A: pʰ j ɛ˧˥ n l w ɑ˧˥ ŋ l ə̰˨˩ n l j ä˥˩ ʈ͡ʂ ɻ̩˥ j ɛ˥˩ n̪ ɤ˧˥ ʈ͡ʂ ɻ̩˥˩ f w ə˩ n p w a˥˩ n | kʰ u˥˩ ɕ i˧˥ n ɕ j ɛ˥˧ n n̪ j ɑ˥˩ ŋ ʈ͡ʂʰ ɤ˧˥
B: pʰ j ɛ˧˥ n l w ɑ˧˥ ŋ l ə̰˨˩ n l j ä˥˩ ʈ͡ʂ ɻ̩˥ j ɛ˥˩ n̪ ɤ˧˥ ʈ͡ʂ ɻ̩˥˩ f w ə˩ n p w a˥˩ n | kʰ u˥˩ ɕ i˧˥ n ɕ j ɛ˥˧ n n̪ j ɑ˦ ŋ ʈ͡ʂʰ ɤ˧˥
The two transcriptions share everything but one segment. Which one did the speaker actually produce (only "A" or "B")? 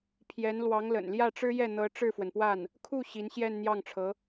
A